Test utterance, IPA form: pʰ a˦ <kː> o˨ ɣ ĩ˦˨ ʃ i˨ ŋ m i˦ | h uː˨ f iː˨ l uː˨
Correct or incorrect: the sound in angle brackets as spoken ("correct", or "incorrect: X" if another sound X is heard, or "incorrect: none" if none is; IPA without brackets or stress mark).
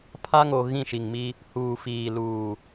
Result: incorrect: ŋ